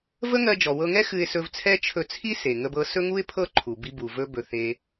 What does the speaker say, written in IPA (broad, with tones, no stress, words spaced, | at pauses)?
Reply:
və˥ŋɜ˧ d͡ʒɔ˩wɤ˧ŋɛ˥ xɨ˧ɪ̯sɵ˧vt͡sʰɛ˥ t͡ʃʰɵ˧t͡sʰi˥ se˩ ŋə˧bɤ˧ sɵ˥ŋu˥ɪ̯pʰɤ˥ ǃʰu˩bi˧bu˩ vɵ˧bɵ˩ θe˩